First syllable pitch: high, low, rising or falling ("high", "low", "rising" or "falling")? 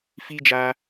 high